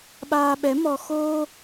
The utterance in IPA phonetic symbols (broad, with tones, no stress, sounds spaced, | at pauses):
ɓ aː˧ ɓ ɛ˨˦ m ɔ˧ x o˧